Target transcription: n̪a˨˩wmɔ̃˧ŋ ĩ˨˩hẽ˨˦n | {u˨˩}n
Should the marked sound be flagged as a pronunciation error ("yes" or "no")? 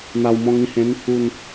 no